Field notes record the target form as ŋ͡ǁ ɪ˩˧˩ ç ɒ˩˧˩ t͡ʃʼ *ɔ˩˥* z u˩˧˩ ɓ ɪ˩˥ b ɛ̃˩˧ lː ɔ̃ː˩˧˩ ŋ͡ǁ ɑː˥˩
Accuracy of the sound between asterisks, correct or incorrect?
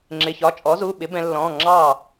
correct